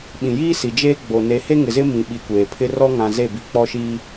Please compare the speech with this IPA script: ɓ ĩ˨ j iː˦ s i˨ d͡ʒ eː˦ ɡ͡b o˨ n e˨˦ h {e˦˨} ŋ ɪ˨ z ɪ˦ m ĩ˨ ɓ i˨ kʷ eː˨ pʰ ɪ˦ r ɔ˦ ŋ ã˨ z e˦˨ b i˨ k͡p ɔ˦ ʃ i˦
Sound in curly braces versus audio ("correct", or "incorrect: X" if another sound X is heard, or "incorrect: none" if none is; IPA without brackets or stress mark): incorrect: e˦